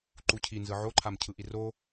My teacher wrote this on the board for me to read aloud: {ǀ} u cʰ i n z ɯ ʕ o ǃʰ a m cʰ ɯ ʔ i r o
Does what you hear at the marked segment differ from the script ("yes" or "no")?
yes